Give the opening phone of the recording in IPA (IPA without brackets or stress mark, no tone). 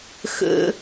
x